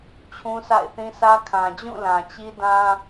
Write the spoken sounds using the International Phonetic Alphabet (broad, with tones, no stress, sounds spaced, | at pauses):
t͡ɕʰ ũ˦ s a̰˦˨ ɪ̯ θ ĩ˦ s ä˦ kʰ ã˨ d͡ʑ ũ˦˨ l ã˨ t͡ɕ i˦ d ã˦